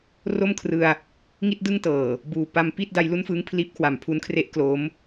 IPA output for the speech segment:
r o˥˩ m kʰ r ɯ˧ a̯ | ŋ i˥˩ t̚ d ɯ˥˩ ŋ t ɤː˨˩ | b uː˨˩ p a˧ m p i˥˩ t̚ d a˧ j l u˥˩ n f ɯː˦˥ ŋ pʰ l iː˦˥ p̚ kʰ w a˨˩ m pʰ u˦˥ n kʰ r e˥˩ ʔ k l oː˦˥ m

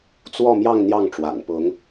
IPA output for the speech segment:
t͡s w ɔ˥˧ m j ɑ˥˧ ŋ n̪ j ɑ˥˩ ŋ ʈ͡ʂ w a̰˨˩ n p ʊ˧˥ ŋ

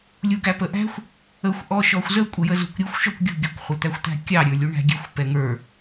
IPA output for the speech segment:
lʲ u ɡ æ p ə ʔ æ̤ xʷ | ə xʷ ʔ ɔ ʃ ɔ xʷ z ə kʷʼ ə j ə z ṳ kʷ ɾʲ u xʷ ʃ ɔ kʷ ɡʲ ṳ ɡʲ ɔ kʷ χʷ ə t̪ æ xʷ t̪ æ̤ kʲ ɑ ɾʲ ə˞ lʲ u ɳ æ̤ ɡʲ ɛ xʷ p ɛ ŋ ə˞

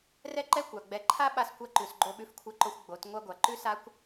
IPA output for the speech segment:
r ɛ˦ ǃ ɛ˦ kʷ a˨ ɡ͡b ɛ˨ ǃʰ a˦ ɓ a˧ s kʷ a˧ ǃ ʉ˨ s ɡ͡ǃ o˧ ɓ ʉ˧ f kʷʰ ɛ˧ ǃ o˧ xʷ ɡ͡b o˨˦ t ŋʷ a˧ ɡʷ a˨ ǃ ʉ˦ s a˦ kʷ

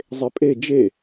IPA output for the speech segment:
zˤ e pʼ e d͡ʒ e

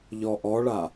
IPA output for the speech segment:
ʎ ɔ ʔ ɔ ɭ a

